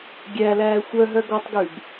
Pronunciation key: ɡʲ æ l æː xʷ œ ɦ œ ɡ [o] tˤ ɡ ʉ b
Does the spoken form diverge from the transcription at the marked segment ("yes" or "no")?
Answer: yes